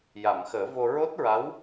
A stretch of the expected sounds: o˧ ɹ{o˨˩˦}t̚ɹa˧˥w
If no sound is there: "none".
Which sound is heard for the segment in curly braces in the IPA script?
o˦˥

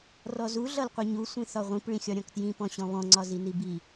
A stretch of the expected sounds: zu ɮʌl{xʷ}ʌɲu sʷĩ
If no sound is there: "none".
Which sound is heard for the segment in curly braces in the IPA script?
qʷ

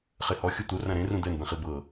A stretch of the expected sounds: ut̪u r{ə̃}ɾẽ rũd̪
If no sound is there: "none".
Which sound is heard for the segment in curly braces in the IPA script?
ã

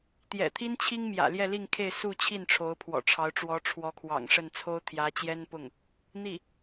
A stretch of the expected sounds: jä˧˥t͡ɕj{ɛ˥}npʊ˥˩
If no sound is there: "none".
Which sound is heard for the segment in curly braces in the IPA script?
ɛ˥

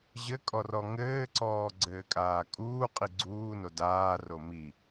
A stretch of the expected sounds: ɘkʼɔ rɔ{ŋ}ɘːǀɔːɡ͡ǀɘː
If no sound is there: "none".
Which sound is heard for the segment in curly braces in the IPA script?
ŋ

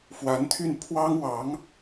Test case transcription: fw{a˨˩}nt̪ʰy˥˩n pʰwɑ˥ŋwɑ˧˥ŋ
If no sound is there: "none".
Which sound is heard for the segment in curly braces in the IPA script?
a˧˥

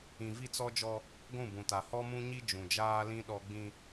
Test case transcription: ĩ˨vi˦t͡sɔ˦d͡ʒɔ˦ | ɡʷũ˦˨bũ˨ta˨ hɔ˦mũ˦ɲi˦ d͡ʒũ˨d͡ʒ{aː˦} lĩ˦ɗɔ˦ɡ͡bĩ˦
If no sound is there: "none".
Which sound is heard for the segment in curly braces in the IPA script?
aː˦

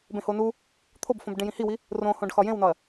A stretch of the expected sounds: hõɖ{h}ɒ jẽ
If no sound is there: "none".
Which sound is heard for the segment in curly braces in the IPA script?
x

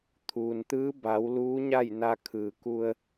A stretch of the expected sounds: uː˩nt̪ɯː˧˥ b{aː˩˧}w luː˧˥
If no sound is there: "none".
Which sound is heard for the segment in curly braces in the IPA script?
a˩˧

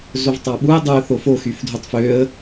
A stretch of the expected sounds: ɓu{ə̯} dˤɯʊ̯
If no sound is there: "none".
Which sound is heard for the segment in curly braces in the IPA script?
ə̯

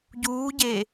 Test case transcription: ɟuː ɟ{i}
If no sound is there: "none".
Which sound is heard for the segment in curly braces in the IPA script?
e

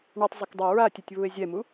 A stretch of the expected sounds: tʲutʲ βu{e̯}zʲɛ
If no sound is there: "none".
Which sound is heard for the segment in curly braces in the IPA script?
e̯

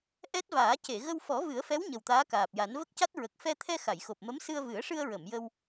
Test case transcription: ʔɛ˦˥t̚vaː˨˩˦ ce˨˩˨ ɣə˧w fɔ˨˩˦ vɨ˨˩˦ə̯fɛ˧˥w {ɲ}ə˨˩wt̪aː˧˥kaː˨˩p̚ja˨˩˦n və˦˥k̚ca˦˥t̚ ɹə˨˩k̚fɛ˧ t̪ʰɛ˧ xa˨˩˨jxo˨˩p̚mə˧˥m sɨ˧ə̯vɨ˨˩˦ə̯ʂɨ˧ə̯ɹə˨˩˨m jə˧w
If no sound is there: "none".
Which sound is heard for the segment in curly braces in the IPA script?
ɲ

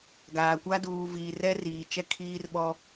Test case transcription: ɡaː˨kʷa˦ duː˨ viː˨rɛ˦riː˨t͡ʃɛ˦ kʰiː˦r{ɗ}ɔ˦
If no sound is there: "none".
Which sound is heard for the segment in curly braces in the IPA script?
ɓ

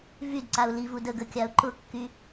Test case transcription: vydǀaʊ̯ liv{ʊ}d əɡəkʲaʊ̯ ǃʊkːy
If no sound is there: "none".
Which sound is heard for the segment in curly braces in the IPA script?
u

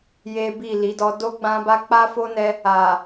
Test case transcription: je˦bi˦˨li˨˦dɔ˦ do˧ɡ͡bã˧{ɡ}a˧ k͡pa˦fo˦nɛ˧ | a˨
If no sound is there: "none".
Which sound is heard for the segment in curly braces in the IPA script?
b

